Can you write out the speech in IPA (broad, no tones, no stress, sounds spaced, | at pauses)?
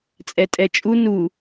t͡sʼ ɛ tʼ ɛ t͡ʃʼ u n u